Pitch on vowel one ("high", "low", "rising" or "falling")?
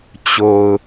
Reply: low